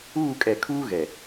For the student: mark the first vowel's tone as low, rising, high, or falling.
falling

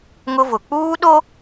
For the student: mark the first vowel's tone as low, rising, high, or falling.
high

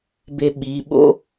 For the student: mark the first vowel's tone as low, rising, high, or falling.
low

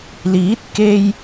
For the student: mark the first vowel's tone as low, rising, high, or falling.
rising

